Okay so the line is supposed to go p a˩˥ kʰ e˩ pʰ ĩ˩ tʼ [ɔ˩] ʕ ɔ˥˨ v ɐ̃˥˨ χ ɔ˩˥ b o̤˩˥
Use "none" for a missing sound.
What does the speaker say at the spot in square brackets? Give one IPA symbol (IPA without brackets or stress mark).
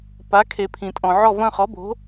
ɔ̃˩